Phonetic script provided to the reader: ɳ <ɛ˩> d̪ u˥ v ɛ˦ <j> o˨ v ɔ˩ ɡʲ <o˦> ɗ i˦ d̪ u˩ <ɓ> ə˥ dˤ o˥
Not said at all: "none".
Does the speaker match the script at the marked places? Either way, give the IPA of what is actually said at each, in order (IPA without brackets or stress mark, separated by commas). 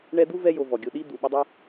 ɛ˦, j, o˨, ɓ